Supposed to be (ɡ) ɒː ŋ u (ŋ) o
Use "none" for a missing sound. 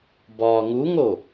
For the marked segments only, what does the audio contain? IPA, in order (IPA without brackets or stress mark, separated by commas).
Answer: b, ŋ